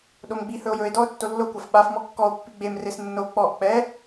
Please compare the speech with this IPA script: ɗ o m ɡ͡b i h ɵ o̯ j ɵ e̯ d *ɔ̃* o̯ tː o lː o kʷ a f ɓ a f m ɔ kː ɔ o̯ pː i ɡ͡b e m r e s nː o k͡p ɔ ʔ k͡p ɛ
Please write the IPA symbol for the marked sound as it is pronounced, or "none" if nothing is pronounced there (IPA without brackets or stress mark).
ɔ